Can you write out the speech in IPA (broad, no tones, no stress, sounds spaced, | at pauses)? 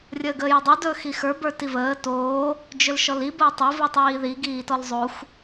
rʲ əː ɡ əː j ə dˤ o d ɵː x i x ə˞ b ə˞ t i v əː t oː | d͡ʒ ɵ l ʃ ɔ l i b əː tˤ o v i tˤ iː ð i ɡ iː t ɔ l zˤ o xʷ